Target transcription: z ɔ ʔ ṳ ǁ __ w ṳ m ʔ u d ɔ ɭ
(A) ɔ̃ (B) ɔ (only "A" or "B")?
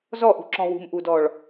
A